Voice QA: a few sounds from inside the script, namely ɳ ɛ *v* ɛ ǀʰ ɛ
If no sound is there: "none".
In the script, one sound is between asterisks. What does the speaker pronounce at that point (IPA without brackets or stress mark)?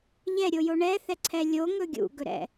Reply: θ